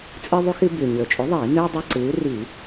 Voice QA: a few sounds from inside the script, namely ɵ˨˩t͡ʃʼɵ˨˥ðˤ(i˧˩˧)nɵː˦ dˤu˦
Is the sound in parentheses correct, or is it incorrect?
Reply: correct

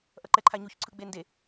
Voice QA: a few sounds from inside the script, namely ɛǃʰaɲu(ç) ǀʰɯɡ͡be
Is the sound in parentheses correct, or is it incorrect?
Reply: correct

